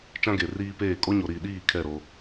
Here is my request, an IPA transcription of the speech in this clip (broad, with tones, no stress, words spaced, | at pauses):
t͡ʃã˦ɡe˨riː˦peː˦˨ kʼo˦ɲo˨ɾiː˨ɗiː˦˨ kʰɛ˦˨ɾo˦